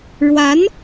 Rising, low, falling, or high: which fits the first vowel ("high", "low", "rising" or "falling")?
rising